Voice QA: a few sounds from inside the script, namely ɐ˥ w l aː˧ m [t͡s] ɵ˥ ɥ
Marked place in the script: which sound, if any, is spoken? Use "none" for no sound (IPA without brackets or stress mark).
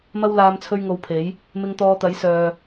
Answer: t͡sʰ